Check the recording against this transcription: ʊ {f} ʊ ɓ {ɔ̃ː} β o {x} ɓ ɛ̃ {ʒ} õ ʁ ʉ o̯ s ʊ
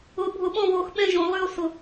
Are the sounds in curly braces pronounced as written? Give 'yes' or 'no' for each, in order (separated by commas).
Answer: no, no, yes, yes